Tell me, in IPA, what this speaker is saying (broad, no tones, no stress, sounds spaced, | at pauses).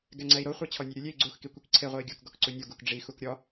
ɡ ɛ ŋ͡ǀ ɛ i̯ ɾ o χʷ ɛ t͡ɕʰ ɔ nʲ ɛ ɾʲ u lʲ e i̯ ɡ͡ǀ u x k i kʷ i k ǀʰ e ʁʷ ɛ i̯ ɡʲ u k ɡ ɔ k ǀ u nʲ o ɡ u k ɖ͡ʐ i x u k ɾʲ ɔ